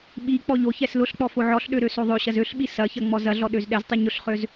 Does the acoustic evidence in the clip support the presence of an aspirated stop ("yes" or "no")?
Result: no